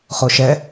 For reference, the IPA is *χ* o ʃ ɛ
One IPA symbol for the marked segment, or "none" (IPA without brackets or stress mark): χ